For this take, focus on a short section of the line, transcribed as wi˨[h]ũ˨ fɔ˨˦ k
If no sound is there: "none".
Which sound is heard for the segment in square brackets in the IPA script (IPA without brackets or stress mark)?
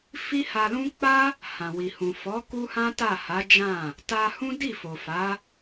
h